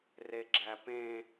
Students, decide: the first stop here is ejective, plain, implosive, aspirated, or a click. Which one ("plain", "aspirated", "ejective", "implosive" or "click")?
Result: click